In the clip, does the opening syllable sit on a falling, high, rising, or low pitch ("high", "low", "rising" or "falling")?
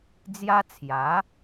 high